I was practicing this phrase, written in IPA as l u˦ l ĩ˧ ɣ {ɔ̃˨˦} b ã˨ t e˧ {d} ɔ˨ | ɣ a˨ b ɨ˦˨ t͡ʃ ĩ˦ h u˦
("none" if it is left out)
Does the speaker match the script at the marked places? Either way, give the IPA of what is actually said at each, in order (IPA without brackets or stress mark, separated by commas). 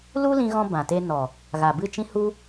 ɔ̃˧, n